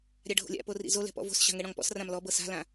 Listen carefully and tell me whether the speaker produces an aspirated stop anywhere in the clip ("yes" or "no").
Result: no